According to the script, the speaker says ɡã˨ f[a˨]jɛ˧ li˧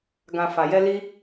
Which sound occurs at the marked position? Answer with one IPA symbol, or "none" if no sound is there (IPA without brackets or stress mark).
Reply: a˨